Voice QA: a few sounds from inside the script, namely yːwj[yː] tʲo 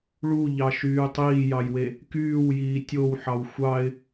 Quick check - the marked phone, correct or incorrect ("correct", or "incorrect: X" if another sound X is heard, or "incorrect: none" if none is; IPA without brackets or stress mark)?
incorrect: iː